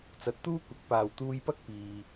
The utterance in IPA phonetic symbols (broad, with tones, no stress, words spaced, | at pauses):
t͡sɐ˨t̚t̪uː˥ kʷɐ˨˥k̚paː˨w t̪uː˧jpɐ˥k̚ piː˨